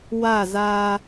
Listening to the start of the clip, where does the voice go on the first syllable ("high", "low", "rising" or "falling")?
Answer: falling